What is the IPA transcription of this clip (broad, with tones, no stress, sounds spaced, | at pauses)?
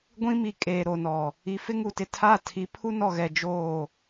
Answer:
ɡʷ ĩ˦ m i˨ kʼ eː˨ ɾ o˨ n ɔ˨ | i˨ f ɪ˦ ŋ u˨ t ɪ˨ tʰ a˦˨ tʰ i˨˦ pʰ u˦ n ɔ˨ ɣ ɛ˨ d͡ʒ oː˦˨